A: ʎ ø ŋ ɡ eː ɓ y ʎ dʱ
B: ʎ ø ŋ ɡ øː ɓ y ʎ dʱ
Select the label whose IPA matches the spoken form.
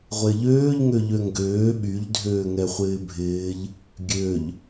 B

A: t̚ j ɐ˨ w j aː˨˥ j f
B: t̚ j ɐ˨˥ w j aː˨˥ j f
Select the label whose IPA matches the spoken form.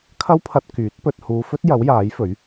B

